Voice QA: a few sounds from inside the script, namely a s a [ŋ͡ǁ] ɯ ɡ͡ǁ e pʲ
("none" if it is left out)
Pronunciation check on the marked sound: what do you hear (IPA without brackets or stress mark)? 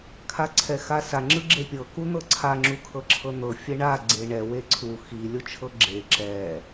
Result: ŋ͡ǁ